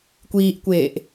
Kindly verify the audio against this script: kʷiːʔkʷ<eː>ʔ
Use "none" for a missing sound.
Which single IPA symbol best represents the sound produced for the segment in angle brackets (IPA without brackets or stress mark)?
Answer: eː